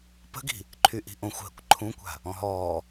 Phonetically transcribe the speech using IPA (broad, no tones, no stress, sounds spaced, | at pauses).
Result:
p ə̤ ɡ i̤ | ǃʰ y ʔ i̤ ʔ õ xʷ ɦ ə̰ kʷ ǃʰ ũ kʷ a̤ | ɔ̃ ɦ ɔː